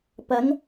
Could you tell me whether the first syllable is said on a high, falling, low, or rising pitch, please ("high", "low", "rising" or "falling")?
rising